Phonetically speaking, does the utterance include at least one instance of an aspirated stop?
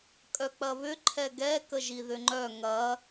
yes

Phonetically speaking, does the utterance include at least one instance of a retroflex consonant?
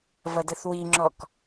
no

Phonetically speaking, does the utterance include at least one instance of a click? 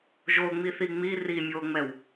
no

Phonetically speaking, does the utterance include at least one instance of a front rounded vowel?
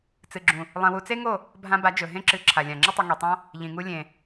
no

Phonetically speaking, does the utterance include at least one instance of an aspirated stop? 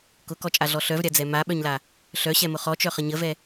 no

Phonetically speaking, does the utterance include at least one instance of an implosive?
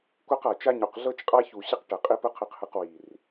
no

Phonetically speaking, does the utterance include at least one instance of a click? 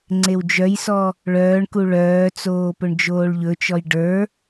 yes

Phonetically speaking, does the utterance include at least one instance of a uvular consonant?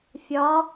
no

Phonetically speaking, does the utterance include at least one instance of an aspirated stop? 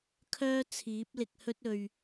yes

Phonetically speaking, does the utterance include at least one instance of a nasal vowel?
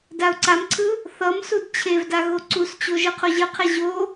no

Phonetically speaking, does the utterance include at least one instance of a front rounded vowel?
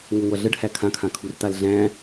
no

